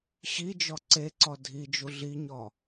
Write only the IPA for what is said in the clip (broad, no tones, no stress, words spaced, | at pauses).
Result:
ɕid͡ʒɔ ǀeǀɔ dʱid͡ʒu ɮiɲɔ